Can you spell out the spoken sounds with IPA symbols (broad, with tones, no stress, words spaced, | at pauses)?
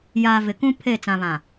jaː˨ vɪ˨kũ˦ pʰe˦˨ t͡sã˨βã˨